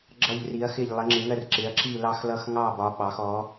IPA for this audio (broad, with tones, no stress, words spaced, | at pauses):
ɡ͡ǁʌ˥˧ʎri˧˥ɐ̯xɪ˥˧ʎ lˠə˧˥ŋ͡ǁɪ˧˥ŋɜ˥˧rǁɪ˧˥ɐ̯ ǁi˥˧lɑ˥˧xlʌ˥˧x ŋɑ˥˧bɒ˧˥ ɓɑ˧˥x ɔ˧˥